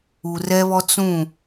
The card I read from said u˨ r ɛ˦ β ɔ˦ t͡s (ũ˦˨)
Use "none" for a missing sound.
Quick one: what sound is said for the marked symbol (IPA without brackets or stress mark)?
ũ˦˨